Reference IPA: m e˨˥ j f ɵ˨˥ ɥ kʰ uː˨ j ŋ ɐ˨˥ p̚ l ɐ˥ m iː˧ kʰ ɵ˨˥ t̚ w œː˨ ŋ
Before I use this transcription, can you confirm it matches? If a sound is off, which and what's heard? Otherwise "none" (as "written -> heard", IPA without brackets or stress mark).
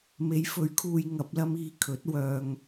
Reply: none